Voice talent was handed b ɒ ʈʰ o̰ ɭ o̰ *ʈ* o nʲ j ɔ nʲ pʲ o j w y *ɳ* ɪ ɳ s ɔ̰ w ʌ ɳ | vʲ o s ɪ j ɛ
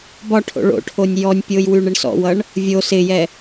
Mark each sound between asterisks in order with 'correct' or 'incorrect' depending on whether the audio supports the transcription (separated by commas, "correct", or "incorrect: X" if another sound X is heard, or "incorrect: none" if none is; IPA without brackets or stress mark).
incorrect: ʈʰ, correct